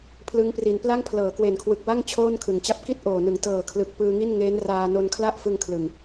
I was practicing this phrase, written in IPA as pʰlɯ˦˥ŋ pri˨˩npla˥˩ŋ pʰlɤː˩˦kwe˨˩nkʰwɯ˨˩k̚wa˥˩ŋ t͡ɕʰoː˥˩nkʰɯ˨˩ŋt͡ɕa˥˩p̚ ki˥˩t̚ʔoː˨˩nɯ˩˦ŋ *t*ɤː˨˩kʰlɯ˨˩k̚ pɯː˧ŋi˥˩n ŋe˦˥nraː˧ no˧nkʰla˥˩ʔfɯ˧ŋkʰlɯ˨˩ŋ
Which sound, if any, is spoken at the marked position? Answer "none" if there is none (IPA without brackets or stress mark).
t